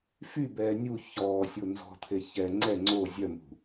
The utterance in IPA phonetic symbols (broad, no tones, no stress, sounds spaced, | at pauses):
f y b ɛː nʲ u ç ɔː sʲ o n z ɔ̤ t̪ʰ e ç ɛ ŋ͡ǀ ɛ ŋ͡ǀ o zʲ œ m ṳ